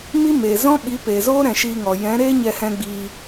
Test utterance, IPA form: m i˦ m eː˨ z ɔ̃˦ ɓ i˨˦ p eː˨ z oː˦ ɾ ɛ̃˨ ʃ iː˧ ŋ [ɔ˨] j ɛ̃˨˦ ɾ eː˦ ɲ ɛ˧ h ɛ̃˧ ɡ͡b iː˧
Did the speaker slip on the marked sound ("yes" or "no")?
no